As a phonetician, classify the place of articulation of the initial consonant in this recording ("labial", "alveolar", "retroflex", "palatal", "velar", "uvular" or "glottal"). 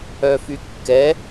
labial